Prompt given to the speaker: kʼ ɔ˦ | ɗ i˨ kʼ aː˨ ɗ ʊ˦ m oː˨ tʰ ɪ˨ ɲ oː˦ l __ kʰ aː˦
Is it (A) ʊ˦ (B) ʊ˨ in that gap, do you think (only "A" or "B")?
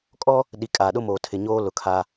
B